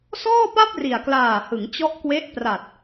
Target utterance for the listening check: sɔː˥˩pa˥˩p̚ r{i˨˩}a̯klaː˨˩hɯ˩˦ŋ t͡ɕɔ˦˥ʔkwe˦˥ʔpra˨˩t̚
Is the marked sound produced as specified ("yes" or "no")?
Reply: yes